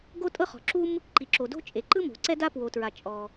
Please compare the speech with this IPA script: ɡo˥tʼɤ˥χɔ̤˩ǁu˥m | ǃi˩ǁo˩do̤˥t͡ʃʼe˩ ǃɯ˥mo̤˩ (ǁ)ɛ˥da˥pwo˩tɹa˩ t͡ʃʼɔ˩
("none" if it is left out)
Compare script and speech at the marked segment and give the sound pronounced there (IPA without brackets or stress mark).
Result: ǀ